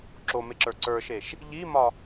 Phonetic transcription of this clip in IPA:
ǁ o m e ǁ ə˞ ǀ ə˞ ʃ e ʃ | ʎ i m ɒ

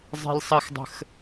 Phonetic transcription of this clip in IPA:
zˤ e̤ lʲ sˤ ɜ x dˤ ə̤ x

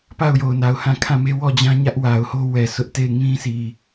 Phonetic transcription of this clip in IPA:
p a˦˨ ʊ̯ j o˨ ʊ̯ n a˨ ʊ̯ h ã˦˨ kʰ ã˦˨ m e˦ w ɔ˦˨ d͡ʑ ã˦ ɲ ä˦ ʔ w a˨ ʊ̯ h o˦ w ɛ˨ sʰ ʊ˦ ʔ t e˦˨ ɪ̯ ŋ ĩ˦ sʰ i˨

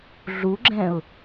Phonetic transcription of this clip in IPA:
ɮ u ɡ͡ǁ ɛ̃ ʊ̯

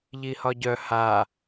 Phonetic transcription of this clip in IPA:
ʎ i h ɒ ɟ œ h a

